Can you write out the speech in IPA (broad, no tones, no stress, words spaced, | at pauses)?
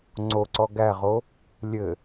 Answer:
ŋ͡ǀoǀɔ ɡæʁo | lʲɘ